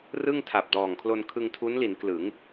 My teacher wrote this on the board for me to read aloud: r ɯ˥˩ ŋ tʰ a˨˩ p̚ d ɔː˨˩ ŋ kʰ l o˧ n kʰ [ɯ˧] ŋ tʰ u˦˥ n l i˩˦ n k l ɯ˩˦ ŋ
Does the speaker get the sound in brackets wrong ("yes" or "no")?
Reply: no